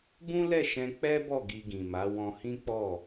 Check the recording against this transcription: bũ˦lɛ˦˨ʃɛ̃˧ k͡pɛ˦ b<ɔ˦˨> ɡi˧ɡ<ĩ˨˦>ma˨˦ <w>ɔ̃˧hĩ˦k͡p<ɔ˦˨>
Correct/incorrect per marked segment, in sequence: correct, incorrect: ĩ˨, correct, correct

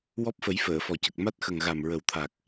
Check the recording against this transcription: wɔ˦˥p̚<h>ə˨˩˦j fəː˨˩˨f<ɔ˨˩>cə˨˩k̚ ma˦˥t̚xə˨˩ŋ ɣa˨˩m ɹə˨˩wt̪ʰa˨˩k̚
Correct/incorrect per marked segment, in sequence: incorrect: f, correct

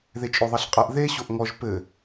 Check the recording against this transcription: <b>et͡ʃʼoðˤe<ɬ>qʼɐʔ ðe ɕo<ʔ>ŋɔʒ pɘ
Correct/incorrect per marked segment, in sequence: incorrect: ð, correct, correct

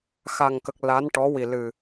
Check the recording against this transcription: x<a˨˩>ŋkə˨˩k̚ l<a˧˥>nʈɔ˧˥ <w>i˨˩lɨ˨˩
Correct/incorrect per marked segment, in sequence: correct, correct, correct

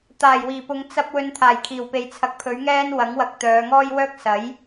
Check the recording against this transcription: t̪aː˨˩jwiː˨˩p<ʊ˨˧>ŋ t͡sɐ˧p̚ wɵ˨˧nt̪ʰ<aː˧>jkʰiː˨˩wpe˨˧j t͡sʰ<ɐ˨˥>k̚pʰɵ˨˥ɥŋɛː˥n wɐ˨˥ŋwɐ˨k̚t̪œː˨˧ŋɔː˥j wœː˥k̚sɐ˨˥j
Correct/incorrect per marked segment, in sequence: correct, incorrect: aː˨˩, incorrect: ɐ˨

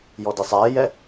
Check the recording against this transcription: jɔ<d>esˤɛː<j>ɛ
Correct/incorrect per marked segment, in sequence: correct, correct

